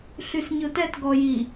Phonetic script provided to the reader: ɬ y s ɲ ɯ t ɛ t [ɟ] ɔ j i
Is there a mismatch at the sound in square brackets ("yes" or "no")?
yes